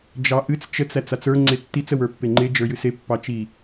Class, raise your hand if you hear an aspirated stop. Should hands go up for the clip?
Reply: no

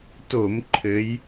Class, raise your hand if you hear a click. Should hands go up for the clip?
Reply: yes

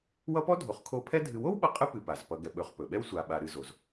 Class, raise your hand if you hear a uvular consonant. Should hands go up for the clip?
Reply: yes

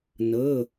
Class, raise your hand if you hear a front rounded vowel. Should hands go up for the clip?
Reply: no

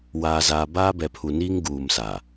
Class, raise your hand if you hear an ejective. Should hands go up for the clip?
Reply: no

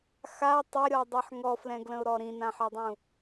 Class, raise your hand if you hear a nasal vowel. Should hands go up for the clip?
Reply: yes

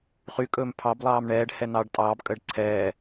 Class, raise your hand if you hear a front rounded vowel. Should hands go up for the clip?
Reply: yes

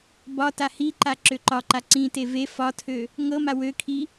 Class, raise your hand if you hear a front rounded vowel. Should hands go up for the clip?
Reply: yes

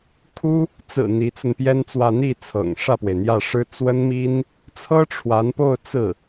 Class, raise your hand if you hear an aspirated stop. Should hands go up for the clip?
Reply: yes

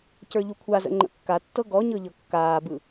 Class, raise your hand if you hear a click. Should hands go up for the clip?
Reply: yes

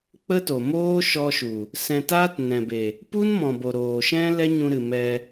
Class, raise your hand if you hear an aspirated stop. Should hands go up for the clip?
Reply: no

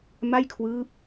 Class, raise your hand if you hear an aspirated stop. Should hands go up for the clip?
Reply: yes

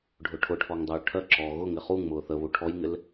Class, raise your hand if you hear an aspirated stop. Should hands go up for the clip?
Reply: yes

